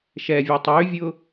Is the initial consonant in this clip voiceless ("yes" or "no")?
yes